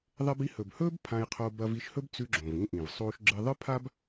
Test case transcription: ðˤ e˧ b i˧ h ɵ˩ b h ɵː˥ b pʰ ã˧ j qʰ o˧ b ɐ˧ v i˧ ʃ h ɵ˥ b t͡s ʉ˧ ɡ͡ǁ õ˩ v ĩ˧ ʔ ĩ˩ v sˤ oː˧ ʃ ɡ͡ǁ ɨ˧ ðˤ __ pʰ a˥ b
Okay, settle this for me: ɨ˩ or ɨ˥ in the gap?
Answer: ɨ˥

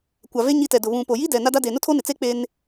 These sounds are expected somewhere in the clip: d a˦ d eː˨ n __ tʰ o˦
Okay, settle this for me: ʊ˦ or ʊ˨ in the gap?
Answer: ʊ˦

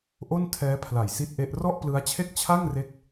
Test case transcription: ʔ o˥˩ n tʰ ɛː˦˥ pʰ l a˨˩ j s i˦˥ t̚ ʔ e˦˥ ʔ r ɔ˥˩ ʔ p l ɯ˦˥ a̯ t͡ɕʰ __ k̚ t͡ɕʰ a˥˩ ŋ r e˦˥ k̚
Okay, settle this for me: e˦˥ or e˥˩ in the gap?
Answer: e˥˩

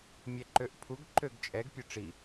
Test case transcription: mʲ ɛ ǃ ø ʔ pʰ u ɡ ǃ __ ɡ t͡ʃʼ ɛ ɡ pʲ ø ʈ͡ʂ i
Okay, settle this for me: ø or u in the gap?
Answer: ø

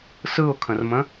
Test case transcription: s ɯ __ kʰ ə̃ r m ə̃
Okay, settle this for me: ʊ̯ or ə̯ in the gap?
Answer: ʊ̯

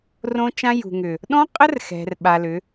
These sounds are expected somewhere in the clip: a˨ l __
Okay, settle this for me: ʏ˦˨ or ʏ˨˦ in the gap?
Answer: ʏ˨˦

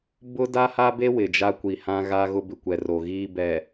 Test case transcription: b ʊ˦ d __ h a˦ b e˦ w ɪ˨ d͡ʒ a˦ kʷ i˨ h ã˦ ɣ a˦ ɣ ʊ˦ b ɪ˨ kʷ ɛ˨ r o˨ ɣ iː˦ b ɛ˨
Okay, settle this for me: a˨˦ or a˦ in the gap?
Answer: a˦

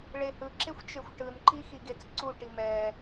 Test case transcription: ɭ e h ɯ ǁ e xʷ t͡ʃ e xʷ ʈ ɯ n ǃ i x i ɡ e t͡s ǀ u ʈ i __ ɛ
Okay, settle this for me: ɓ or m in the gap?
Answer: m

